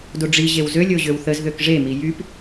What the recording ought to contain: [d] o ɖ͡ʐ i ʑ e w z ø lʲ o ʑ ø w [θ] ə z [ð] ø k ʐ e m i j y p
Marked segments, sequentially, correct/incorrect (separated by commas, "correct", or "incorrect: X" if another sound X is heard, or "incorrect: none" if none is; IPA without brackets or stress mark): correct, correct, correct